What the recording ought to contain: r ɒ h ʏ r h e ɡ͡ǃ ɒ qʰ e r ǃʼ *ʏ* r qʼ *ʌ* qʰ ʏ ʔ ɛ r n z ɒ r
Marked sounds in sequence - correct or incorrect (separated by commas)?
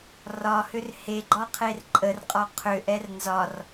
incorrect, incorrect